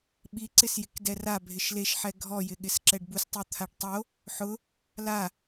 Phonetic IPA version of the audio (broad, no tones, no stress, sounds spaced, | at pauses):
ɓ i ǀ ɪ s j ɪ k d ɛ r a bʱ ɪ ʃ l e ʃ ħ ɛ ɡʱ ɔ j ɪ ɠ ɪ s ǁ ɛ ɖ b u s tˤ u t̪ʰ a ɖ tˤ o | ħ ʊ | l a